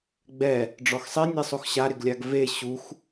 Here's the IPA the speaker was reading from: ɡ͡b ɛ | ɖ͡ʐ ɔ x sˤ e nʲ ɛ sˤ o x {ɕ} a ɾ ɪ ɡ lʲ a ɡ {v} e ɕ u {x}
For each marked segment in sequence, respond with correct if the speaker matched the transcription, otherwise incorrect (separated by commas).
correct, correct, correct